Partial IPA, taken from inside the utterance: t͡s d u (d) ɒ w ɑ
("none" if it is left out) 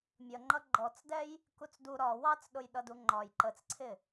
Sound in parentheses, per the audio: ɾ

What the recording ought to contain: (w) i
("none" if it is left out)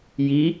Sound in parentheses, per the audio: j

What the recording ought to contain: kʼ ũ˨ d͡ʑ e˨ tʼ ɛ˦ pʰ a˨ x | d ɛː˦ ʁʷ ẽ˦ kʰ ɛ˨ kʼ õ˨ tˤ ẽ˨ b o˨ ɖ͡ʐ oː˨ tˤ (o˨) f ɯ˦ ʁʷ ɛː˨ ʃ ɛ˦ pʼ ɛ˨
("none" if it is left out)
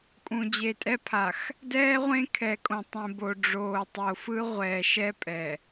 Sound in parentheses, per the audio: o˨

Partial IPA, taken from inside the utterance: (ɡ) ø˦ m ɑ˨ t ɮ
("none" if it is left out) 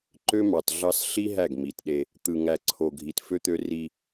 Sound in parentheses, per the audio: ǃ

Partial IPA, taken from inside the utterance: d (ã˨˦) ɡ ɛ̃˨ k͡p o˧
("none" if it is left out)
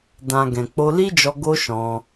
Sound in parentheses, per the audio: ã˨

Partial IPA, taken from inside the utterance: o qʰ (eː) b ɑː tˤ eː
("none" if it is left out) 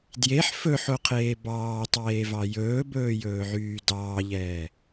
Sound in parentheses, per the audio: eː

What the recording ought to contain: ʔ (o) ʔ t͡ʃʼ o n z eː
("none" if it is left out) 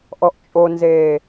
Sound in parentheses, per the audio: ɔ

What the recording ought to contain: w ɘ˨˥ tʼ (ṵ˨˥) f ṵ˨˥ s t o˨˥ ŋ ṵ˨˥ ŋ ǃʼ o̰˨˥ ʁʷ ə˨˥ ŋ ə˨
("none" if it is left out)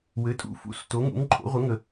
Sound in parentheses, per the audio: ṵ˨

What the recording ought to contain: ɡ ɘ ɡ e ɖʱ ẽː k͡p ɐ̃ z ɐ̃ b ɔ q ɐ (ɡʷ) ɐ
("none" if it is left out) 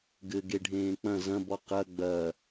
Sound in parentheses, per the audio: ɡ͡b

